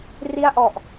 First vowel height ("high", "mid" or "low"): high